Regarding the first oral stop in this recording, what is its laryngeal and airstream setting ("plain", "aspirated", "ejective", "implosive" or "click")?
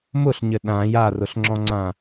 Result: implosive